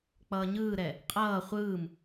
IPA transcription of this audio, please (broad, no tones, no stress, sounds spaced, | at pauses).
k͡p ʌː ɲ ɯː ɾ ɛ | qʼ ʌː χʷ ɯː m